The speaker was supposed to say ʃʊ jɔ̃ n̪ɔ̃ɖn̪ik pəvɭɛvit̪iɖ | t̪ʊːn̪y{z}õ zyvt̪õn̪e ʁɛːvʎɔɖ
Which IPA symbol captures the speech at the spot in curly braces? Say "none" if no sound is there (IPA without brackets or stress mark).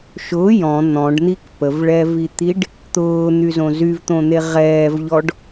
z